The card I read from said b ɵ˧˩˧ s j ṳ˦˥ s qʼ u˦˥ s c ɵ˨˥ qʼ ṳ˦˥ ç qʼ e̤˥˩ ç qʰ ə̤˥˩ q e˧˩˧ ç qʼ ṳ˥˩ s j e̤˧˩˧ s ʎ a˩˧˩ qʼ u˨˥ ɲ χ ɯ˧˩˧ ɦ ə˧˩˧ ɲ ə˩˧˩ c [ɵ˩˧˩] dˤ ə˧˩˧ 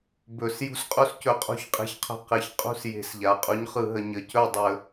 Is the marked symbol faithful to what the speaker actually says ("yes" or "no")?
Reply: no